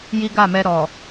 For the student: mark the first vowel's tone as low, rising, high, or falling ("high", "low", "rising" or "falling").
high